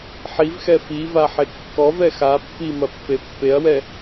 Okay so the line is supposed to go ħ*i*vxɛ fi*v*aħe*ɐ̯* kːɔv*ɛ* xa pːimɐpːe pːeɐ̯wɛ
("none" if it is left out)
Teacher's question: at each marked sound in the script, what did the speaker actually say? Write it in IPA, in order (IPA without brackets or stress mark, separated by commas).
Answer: i, v, none, ɛ